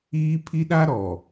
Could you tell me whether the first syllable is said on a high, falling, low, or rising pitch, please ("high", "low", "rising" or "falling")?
high